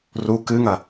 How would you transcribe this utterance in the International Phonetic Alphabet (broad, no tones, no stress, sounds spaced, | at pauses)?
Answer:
r u k ɨ ŋ ɐ